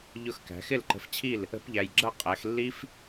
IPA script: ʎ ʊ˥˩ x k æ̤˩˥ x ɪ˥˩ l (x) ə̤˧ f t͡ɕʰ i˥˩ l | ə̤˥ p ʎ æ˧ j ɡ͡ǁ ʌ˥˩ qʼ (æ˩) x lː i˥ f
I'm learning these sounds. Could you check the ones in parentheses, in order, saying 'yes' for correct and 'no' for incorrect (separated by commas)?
no, no